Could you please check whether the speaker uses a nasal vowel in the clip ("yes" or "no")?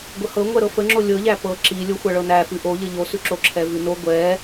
no